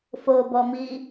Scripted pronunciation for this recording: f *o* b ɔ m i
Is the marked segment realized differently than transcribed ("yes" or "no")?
no